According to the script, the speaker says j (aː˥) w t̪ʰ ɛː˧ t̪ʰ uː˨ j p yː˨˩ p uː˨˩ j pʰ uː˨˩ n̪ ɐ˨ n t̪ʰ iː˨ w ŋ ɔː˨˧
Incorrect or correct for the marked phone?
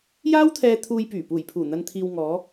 correct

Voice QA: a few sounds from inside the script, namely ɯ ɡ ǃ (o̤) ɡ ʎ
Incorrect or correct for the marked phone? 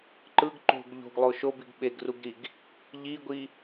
correct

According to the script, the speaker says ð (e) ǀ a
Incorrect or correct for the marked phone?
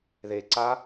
correct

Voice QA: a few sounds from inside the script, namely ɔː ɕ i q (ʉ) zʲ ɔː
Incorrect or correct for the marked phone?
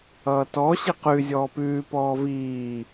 correct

